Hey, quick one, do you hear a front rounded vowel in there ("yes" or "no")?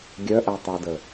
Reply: yes